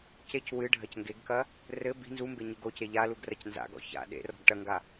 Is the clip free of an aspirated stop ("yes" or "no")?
yes